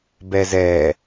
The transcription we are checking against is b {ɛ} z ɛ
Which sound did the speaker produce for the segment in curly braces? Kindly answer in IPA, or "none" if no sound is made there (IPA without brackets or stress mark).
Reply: ɛ